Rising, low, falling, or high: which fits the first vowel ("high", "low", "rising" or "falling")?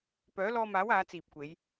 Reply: rising